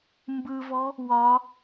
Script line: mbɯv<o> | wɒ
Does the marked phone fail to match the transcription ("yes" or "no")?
yes